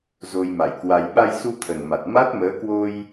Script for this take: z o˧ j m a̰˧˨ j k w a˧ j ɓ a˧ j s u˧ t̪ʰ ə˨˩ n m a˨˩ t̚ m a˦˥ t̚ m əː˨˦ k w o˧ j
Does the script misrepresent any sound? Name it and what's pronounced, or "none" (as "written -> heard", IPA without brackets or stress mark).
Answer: none